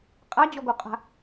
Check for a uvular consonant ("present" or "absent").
present